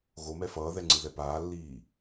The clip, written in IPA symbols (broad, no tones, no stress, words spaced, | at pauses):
ɣomɛ fʌːðɛŋ͡ǀɯðɛ paːlːiː